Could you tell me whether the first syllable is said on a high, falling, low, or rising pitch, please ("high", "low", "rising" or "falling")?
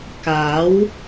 rising